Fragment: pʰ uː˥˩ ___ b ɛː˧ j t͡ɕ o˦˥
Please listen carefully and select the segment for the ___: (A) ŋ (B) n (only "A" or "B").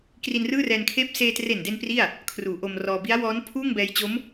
A